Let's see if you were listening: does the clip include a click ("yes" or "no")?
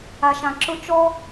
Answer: yes